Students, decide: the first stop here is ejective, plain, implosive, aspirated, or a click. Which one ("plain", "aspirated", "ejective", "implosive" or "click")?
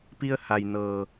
plain